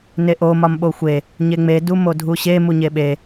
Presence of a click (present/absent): absent